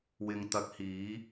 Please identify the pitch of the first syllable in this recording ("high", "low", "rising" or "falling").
low